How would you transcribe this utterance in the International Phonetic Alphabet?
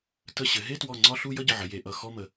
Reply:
t ə˧˩ ɕ ɘ˩˧ ɦ e˥˧ t w ɔ˧˩ ŋ͡ǀ ɒ˥˧ ɬ u˥˧ j ʌ˥˧ ɟ ə˩˧˩ ʕ ə˩˧ j e˩˧ ʔ ʌ˧˩ x ɔ˥˧ m ə˩˧

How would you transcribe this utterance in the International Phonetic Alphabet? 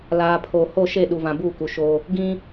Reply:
l aː˨ pʰ oː˨ h o˦˨ ʃ e˦˨ ɗ u˨ v ã˨ b uː˦˨ k u˨ ʃ oː˦ | ɡ ĩ˦

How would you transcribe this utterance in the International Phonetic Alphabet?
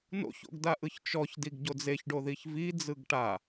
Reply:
n o̰ ç o̰ ɡ d a ʔ ɯ ç t͡ʃ ɔ ç d i ɡ ɟ o d͡z e ç ɖ o ð i ç v i d͡z ɯ ɡ ʈ a

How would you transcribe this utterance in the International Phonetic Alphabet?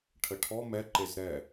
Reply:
ʈʰ ə ʈʰ ɔ m ɛ ǃ e z ɾ ɛ

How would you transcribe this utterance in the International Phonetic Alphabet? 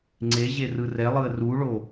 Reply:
ŋ͡ǀ e ʑ e r ɯ r ɛ lˠ ɯ ə̯ r u ɭ o

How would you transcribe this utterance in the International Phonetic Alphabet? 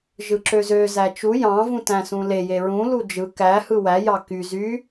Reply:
ʒ ɯ ǁ ø z ø z æ t͡ʃ u j ɑ̃ v ũ t æ̃ s ũ l e j e ɹ ũ l u d͡ʒ ɯ k æ h ɯ w æ j ɑ k y z y

